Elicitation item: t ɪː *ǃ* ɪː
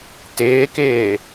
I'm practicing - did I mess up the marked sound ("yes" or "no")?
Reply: yes